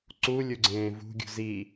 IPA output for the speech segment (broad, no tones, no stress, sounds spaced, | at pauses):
ǀ u lʲ u ɡ͡ǀ ẽː v ṳ ɡʲ ṳ z i